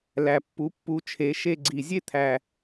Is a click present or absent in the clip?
present